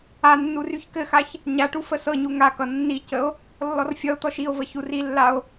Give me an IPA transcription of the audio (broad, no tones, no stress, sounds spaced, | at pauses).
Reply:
a nː u r y ç k ɘ x a ç | ɲ a ʈ u f ə s ɤ ɲ u ŋ a k ʌ nː i c ə o̯ | lː ɔ r fʲ ʌ o̯ t̪ ɔ ʃ i o̯ v ə ç u r i lː a o̯